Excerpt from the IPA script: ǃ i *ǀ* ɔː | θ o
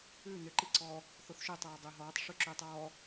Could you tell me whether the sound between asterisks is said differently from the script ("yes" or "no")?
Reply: no